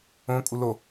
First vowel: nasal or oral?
nasal